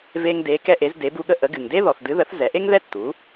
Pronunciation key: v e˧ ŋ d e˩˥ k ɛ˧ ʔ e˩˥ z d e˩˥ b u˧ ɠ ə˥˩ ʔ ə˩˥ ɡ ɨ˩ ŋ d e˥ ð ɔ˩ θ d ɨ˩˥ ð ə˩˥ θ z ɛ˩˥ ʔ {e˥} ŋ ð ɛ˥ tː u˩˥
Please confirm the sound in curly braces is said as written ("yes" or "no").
yes